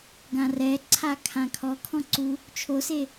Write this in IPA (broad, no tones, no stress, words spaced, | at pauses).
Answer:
ɡãrɛǀʰa kʰãkʰɔkʰɔ̃ ǀu | t͡ʃʰose